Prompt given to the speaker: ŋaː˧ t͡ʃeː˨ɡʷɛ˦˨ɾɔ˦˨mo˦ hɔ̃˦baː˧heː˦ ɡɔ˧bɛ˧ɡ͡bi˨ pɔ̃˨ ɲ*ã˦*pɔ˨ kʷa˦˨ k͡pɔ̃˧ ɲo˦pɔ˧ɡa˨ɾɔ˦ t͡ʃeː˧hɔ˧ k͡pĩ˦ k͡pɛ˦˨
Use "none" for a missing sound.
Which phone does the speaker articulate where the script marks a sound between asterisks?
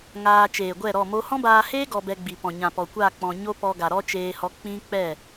ã˨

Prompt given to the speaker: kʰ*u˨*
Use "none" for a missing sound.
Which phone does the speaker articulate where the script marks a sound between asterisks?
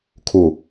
u˨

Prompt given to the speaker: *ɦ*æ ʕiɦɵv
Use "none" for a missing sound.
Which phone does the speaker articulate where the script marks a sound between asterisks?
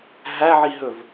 ɦ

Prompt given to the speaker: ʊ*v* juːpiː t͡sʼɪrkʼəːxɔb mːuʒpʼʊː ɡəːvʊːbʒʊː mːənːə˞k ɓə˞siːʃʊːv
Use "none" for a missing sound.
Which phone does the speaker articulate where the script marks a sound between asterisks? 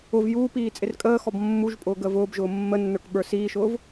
v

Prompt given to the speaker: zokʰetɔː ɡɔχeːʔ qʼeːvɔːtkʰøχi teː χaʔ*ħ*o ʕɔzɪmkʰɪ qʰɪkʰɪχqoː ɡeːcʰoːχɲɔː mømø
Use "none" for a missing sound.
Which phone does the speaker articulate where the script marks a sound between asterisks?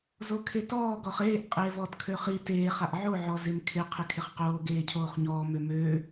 ʕ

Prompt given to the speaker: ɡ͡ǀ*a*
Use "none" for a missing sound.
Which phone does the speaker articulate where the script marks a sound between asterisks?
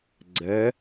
ə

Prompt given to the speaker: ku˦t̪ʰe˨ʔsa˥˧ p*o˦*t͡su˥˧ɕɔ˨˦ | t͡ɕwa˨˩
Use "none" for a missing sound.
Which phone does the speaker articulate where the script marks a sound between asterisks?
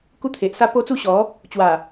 o˦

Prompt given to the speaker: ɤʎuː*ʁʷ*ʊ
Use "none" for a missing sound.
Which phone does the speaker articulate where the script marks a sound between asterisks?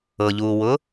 w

